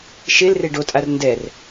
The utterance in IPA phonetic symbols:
ʃelre ɖotʼar ndɛr

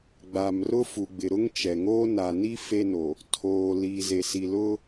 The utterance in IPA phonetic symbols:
ɡ͡ba˨mrʊ˦fu˨ɡ͡bɪ˨ ɾʊ˦ŋt͡ʃɛ˨ŋoː˦ na˨ni˦ fe˦no˨ | tʰoː˨ liː˨ze˨ si˨lʊ˦

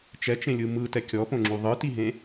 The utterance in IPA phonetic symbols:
t͡ʃɛt͡ʃẽlʲɯ mɯtɛ kʲɔpõŋ͡ǁu ðˤɯtiɦẽ

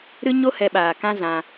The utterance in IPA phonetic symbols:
ɾɨ˦ ɲo˦hɛ˧ɓaː˨ kã˦zã˧

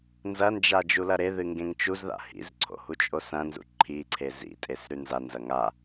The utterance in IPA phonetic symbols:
nzɐnd͡ʒa d͡ʒulɐɾeðɨ ŋɡẽŋt͡ʃuzða̰ hḭzǀʰo̰ hut͡ʃʼosɐ̃nzṵ ǃʰi ǀʰezḭtʼes ɾʉnzanzɐ ŋa

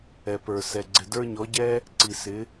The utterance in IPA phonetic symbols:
ɛ˩pə˞˩ sɛ˩ɡ͡ǀɪ˩də˞˧ɲɔ˩˧ ɟɛ˥ | ǀi˩sɪ˩˧

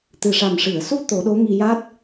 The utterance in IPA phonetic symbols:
t̪ɨ˨˩ʂa˨˩mʂɨ˨˩˨ə̯su˧ t̪o˨˩˦ɗo˧˥ŋi˧ja˦˥t̚

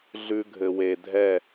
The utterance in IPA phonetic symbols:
ɮʉ˧ɡʱɘ˨we˨dʱɛ˦˨

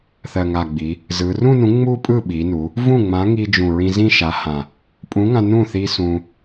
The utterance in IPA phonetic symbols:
θɜ˨˩ŋa˨˩ɡ͡bi˩˧ | zɯ˩˧rũ˥˧nũ˨˥ ŋ͡mu˥˧pʼɯ˥˩ɓi˩˧nu˩˧ | vũ˥˩ŋ͡mã˨˥ŋi˧ d͡ʒũ˨˩ɹĩ˧ zĩ˥˧ʃa˨˥ hã˨˩ | pʼũ˨˥ŋã˧ nũ˥˩ θi˧ sũ˧

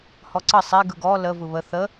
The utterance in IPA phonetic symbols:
hɔǀə sˤe ɡɯɡɔ lə vɯβə θə

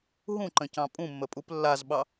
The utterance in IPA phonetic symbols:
ɦũǃə̃cɑ̃ pʼũmːəpʼup lːazɓɑ

